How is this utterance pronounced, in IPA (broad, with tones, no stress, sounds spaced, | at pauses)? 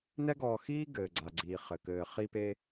n ɛ˥ ɡ ɔː˧ x iː˥ ɡ ɘː˩ ɡ͡ǀ a˩ ɡ͡ǀ iː˩ χ ɘ˩ k ɘː˩ χ i˧ p e˧